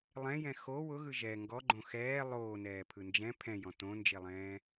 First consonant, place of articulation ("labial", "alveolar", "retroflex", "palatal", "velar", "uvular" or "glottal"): alveolar